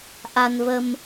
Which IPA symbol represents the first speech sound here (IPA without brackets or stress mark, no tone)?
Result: ʔ